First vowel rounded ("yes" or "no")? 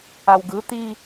no